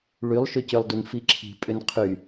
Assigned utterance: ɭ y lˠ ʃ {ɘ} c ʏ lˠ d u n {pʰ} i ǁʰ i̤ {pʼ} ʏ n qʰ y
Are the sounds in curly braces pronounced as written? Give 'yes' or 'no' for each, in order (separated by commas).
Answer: no, no, yes